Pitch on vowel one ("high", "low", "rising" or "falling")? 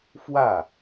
falling